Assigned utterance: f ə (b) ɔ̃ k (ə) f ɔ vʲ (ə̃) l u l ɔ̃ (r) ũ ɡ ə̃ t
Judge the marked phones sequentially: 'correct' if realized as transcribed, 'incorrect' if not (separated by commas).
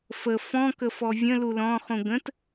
incorrect, correct, correct, incorrect